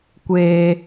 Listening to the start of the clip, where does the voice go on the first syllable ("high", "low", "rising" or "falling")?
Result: high